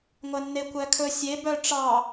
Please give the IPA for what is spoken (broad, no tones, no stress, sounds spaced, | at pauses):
ŋʷ æ nː e kʷ æ kʰ ɵ sʲ e b œ ʈ͡ʂ ɑ